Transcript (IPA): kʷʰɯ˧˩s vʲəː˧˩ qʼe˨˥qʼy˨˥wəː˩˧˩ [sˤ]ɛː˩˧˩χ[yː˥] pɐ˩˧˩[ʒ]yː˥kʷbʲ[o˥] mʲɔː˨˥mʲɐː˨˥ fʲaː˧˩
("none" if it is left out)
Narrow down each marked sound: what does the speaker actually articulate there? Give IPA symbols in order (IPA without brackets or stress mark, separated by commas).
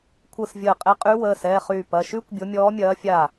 s, yː˧˩, ʃ, o˨˥